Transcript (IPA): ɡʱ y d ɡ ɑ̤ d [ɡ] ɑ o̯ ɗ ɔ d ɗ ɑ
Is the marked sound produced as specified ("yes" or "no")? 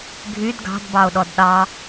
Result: no